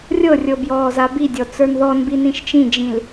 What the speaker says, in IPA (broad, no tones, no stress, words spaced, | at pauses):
rʲɤrʲɤ bjɔːzabidʲɔ t͡sə˞nðɔnbi nĩʃt͡ʃĩd͡ʒĩl